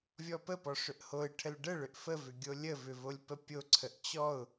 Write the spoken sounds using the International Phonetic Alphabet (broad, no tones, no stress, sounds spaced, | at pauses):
vʲ ɔ p ə p ɔ ʂ ʏ ʔ h o ɪ̯ ʈʰ ə l ɖ ə ɭ ʏ ʔ f ə v ʏ ɡʲ o lʲ ə v ʏ v o lʲ p ə pʲ o ǀʰ ə ʔ t͡ɕ ɔ ʊ̯